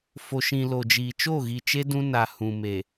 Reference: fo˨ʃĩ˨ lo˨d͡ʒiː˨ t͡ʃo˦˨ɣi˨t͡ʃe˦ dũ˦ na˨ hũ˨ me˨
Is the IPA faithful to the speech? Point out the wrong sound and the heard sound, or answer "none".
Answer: none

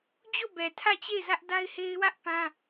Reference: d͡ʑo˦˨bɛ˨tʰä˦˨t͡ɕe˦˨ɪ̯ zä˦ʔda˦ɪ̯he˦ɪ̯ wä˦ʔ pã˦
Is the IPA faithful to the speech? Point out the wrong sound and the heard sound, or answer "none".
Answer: none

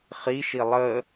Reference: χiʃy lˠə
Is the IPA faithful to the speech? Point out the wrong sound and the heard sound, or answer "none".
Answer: y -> i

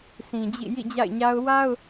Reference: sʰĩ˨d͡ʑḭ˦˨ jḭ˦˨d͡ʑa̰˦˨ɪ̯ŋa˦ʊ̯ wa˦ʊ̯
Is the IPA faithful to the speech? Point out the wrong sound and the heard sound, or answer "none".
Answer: ŋ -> ɲ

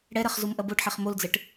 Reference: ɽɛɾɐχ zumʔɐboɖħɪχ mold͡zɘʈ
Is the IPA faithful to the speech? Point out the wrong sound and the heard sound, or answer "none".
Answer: ɪ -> ɛ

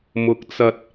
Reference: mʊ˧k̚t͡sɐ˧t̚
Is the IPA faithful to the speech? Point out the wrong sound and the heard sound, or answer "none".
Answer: none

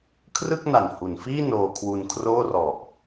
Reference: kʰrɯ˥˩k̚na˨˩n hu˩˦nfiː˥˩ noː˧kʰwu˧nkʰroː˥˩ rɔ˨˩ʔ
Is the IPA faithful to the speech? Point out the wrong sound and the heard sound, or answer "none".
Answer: none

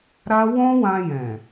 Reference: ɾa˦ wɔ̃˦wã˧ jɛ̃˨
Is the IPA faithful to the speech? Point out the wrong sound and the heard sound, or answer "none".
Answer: none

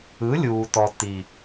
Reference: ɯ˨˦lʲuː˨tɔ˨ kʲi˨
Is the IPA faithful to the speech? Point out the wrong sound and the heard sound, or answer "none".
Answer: kʲ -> t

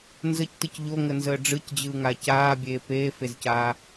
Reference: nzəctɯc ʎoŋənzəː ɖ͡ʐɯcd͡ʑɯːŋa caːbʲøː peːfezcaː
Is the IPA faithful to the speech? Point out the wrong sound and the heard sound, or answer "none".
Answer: øː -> eː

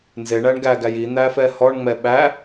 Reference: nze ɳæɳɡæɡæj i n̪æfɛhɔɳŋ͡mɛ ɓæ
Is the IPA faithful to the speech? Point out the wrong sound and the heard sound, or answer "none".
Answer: none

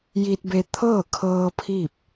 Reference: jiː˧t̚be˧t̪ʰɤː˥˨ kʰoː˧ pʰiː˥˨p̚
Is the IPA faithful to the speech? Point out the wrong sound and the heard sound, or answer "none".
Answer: oː˧ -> ɤː˧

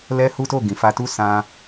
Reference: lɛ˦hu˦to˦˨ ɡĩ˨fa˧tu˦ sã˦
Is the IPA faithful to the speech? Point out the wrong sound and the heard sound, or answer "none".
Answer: none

